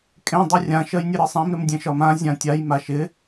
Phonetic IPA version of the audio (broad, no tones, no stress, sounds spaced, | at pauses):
kʼ ẽ dˤ u rʲ ã ʃ ɜ j nʲ ɘ ɾ ɘ sˤ ã m ɾ ɪ m dʲ ẽ ʃ ɒ m ã zʲ ã tʲ a j m a ʃ ɪ